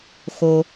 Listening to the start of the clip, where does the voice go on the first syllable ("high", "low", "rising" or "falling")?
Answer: low